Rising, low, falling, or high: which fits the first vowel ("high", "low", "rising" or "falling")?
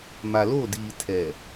low